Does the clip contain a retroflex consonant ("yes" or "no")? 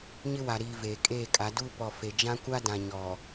no